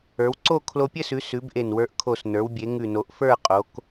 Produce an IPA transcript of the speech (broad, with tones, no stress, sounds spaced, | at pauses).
ə˞˩˧ w ǀ o˥˧ kʰ l o˧ pʲ ɘ˥˧ s ʉ˩˧ s ʉ˩˧ b ʔ e˨˩ n w ə˞˧ ʔ kʰ o˨˩ s n ə˞˩˧ w bʲ e˩˧ ŋ ʉ˨˩ n o˩˧ ʔ f ə˞˥˧ qʼ o˩˧ k